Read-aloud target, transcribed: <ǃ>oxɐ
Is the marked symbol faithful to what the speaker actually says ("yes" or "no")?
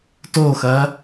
no